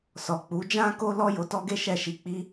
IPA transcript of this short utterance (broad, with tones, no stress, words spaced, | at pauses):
sɔ˨k͡pu˨˦d͡ʒã˦ko˦ lɔ˦jo˧tɔ˦ɡe˦ ʃɛ˦˨ʃi˧k͡pi˦